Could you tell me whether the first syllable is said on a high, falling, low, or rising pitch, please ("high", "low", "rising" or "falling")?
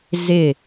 falling